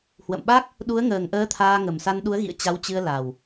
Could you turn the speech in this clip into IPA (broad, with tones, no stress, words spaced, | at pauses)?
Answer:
hwə̰˧˨mɓa˦˥k̚ | ɗu˨˦ə̯ŋəː˨˩ŋʔəː˨˦ t̪ʰaː˧ŋə˨˩m sa˧nɗu˨˦ə̯ ɣḭ˧˨ə̯ t͡ɕa˨˦wt͡ɕɨ˧ə̯la˨˩w